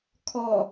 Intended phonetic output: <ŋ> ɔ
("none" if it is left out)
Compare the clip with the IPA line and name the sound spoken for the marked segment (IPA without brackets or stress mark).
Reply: kʰ